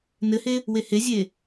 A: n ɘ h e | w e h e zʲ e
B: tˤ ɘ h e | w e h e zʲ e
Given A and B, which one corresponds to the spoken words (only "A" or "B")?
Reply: A